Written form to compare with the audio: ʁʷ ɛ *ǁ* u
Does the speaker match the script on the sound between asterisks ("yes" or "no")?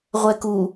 no